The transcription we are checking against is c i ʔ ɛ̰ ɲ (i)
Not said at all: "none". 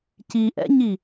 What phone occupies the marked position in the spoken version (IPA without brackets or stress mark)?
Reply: i